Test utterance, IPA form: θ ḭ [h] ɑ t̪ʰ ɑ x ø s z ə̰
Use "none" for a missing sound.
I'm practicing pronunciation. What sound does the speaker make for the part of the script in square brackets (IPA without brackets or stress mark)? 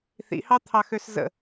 h